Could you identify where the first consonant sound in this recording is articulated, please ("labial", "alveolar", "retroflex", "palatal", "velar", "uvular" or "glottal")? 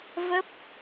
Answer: labial